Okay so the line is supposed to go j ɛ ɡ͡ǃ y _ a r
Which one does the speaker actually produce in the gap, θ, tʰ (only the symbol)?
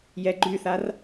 θ